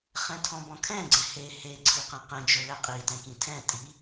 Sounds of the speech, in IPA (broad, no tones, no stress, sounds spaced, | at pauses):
χ ɛ̃ tʰ ɔ̃ b ɔ̃ kʰ ɛ̃ ɡ͡ǀ ɛ̃ h e h e ǀʰ i q ɛ̃ q ɛ̃ d͡ʒ o l ɛ qʼ i t ɛ̃ k ĩ tʰ ɛ̃ tʼ i